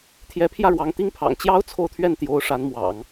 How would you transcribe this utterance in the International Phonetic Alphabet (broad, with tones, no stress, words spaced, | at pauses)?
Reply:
t̪ʰjɛ˧˥pʰjä˥˩ɻwɑ˧˥ŋ t̪i˥ŋpʰɑ̰˨˩ŋ t͡ɕjɑ˥ʊ̯ t͡sʰo˥˧ʊ̯t̪ʰɥɛ˥˩nt̪jo˧˥ʊ̯ ʂa˧˥nmwɑ̰˨˩˦ŋ